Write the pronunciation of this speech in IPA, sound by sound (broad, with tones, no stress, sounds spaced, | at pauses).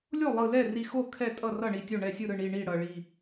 lʲ o˥˩ lˠ ɯ˧˩ l ɛ˥˩ r i˧˩ x o˥˩ kʰ ɛ˥˩ tʼ ʌ˥˩ r ʌ˥˩ ɳ i˥˩ tʲ o˥˩ ɳ ɛ˥˩ sʲ ɯ˥˩ ɾ ɯ˥˩ ɳ i˧˩ ɳ i˥˩ ɽ ʌ˧˩ ɭ i˧˩